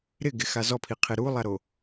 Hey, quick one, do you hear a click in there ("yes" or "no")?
no